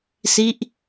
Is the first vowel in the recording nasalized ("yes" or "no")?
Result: no